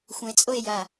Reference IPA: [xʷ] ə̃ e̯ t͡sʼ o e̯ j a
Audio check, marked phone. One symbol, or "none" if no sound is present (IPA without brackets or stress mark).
xʷ